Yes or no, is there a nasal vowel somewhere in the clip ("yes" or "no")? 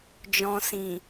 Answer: yes